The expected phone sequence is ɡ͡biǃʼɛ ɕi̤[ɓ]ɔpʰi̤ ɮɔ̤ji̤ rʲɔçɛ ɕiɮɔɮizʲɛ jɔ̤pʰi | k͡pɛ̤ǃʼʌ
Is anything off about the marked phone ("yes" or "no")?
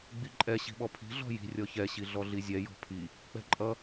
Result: no